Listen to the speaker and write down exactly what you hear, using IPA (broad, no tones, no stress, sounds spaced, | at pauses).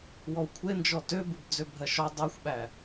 w ɔ w kʷʰ e n d͡ʒ ɔ t ø b ɨ b d͡z ø bʱ ɜ ʃ ɔ dˤ e xʷ ɓ æ